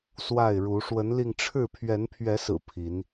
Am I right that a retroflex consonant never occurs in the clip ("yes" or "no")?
no